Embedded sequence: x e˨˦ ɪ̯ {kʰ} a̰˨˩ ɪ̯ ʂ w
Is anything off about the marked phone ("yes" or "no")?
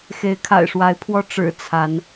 no